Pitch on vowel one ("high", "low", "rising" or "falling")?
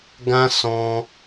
high